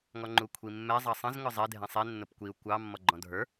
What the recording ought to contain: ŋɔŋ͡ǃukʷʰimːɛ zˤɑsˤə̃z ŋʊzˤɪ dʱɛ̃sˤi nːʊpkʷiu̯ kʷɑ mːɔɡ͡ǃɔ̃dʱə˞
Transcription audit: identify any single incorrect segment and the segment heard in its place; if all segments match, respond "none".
none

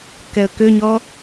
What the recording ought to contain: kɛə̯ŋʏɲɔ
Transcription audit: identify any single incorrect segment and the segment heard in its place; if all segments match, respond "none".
ŋ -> k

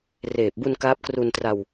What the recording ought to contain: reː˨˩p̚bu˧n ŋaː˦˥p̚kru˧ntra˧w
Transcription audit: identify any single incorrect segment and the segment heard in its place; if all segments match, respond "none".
ŋ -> k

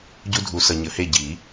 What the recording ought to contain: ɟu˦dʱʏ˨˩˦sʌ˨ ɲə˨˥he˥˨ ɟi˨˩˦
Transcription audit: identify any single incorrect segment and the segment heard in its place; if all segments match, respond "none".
ʏ˨˩˦ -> u˨˩˦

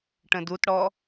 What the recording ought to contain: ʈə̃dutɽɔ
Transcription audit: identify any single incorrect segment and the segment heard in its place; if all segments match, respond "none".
none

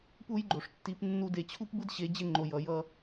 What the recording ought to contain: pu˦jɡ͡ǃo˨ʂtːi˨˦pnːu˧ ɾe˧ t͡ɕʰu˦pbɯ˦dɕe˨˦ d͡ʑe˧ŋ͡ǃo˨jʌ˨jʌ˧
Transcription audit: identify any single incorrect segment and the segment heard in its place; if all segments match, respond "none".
ɾ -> d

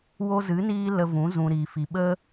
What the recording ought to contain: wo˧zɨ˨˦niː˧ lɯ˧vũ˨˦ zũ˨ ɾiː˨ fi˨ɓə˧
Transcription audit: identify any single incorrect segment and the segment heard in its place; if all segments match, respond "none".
ɯ˧ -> ə˧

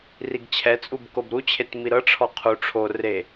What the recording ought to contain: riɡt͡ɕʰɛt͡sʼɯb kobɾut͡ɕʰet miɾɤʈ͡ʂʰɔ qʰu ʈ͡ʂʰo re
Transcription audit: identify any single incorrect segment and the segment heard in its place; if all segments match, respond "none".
ɯ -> u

